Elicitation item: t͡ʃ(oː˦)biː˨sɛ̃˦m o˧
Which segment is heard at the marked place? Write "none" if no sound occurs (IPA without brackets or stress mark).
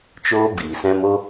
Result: oː˦